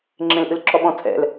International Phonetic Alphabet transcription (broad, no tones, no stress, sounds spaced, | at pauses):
ŋ͡ǁ ẽ l ʔ ɨ l ǁ ɔ ɓ ɔ̃ tʰ ɛ̰ l